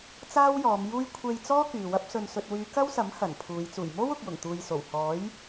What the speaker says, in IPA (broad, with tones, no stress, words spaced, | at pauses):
t͡saː˥wjɔː˨˧mjuː˥j kʷʰe˧jt͡sɔː˥ kyː˨wɐ˥p̚ sɵ˨nsɵ˨t̚wyː˨˧ kɐ˥wsɐ˨˥m hɐ˨˩npʰuː˨˧j t͡suː˨˩jmo˥w ʊ˨k̚jʊ˨˩ŋt̪uː˨j so˨˩w hɔː˨˥j